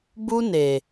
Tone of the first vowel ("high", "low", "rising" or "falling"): high